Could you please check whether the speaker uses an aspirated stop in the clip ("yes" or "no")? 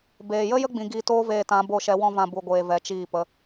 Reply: no